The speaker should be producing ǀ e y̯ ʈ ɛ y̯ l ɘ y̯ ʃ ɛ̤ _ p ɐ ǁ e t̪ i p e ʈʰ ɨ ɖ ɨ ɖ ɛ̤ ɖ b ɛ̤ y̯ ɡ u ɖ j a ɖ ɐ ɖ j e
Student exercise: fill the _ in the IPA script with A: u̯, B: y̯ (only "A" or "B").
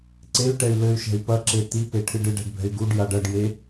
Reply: B